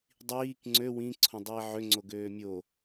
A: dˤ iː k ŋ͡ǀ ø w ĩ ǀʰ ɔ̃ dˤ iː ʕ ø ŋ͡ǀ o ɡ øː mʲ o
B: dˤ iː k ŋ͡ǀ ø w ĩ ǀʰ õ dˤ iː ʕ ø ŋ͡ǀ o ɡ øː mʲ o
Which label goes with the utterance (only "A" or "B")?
B